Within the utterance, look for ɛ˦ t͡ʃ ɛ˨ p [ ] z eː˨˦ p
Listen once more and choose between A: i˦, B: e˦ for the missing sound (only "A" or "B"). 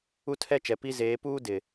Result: A